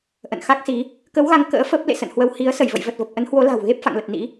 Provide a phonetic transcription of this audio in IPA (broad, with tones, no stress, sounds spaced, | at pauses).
ʔ ə̰˧˨ n x a˦˥ k̚ s i˨˦ | k ə˨˦ w ɣ a˨˦ ŋ k ə̰ː˧˥ f ə˦˥ p̚ l ḛ˧˨ s ə̰˧˨ n h w ə˧ w h i˨˦ ə̯ s ə˧˩ j v ə̰˧˨ j v ə˨˩ t̚ v ə˨˩ p̚ ʔ ə˨˦ n h w o˨˦ l a̤˨˩ w ɣ e˦˥ p̚ f a̰˧˨ ŋ l ə˨˩ t̚ n ḭ˧˥